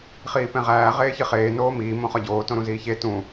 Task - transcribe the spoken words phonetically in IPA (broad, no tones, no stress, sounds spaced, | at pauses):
χ iː p ẽ ʁ æː ʁ eː ç i χ eː n oː m iː m õ χ ɒ ɟ oː t õ ɾ ũ z iː ç e t ũ